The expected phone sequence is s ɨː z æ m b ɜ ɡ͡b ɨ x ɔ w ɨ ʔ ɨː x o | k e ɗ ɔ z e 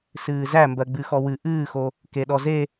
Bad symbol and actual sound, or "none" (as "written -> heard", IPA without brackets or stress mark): none